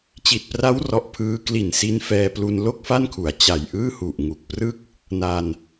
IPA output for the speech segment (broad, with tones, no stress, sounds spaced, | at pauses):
t͡ɕ i˨˩ t̚ p r a˦˥ w r ɔ˨˩ ʔ pʰ ɯː˦˥ k l i˨˩ n s i˧ n f ɛː˧ p l u˧ n l o˥˩ k̚ f a˥˩ n kʰ u˩˦ a̯ t͡ɕ a˨˩ j ʔ ɯː˥˩ h u˨˩ ʔ ŋ u˨˩ k̚ p r ɯ˥˩ k̚ | n a˧ n